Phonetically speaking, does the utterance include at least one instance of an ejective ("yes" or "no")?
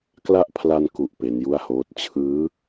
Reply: no